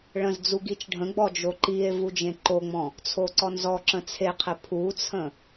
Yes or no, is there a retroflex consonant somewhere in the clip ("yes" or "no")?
yes